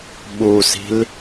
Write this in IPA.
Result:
ɓ u s i̤ l

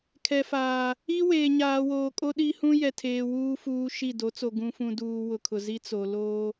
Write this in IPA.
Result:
kʰ ɛ˨ f aː˨ | i˦ w eː˨ ɲ aː˨ w oː˨ kʼ o˦ ɗ i˦ h ũ˦ j ɛ˨ tʰ eː˨ w uː˦ f uː˦ ʃ i˦˨ d o˨˦ t͡s o˨ ɡ ũ˨ f ũ˨ d uː˨ w ʊ˨ kʰ ʊ˨ z i˦ t͡s o˨ l oː˦

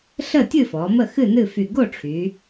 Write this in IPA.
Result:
ɬ ə˥˨ tʲ ɨ˥˨ f ɔ˩˧ m ə˥˨ x ɨ˥˨ n ɨ˥˨ f y˧˩ ɡ o˥˨ ʈ͡ʂʰ y˩˧

